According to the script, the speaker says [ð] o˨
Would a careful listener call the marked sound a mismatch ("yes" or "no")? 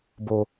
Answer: yes